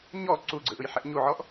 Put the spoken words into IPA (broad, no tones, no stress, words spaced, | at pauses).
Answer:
ɲɔ ǀuɡ͡ǀɯʔɯjħɛʔ ɲuʕɔʔ